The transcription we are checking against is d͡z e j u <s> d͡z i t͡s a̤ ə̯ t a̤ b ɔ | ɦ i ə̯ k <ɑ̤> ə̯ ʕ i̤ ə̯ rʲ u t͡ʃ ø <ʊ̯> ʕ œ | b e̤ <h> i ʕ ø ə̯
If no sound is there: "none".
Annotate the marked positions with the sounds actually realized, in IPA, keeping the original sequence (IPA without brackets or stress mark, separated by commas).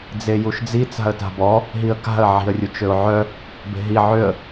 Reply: ʃ, a̤, ʊ̯, ɦ